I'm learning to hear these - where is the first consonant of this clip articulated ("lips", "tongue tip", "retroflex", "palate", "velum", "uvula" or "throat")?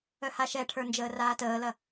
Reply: throat